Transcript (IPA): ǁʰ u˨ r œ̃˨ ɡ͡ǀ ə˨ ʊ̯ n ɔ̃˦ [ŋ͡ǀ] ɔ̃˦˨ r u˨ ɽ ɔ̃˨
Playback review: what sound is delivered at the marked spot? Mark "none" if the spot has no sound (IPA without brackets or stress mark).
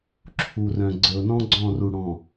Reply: ɡ͡ǀ